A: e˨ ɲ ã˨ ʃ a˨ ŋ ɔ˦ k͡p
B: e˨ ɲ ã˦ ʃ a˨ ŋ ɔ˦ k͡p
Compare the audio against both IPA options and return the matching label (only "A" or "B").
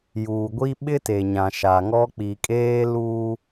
A